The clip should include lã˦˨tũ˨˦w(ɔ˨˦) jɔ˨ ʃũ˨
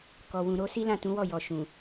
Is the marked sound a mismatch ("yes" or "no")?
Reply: yes